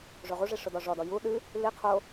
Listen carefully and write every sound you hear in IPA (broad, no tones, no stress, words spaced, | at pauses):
ʐoʁuʐi ʂʊdɔʐɔdɔ ju ɗɨ | li qʰo